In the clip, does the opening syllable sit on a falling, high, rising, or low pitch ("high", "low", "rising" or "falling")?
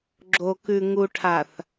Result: low